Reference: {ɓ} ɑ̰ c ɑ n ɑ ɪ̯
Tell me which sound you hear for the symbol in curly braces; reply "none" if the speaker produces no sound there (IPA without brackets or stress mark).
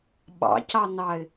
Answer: ɓ